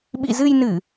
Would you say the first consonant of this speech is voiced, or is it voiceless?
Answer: voiced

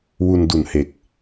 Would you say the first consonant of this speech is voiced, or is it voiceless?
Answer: voiced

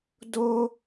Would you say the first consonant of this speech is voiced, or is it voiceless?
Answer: voiced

